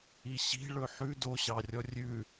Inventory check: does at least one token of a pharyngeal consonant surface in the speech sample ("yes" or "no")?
yes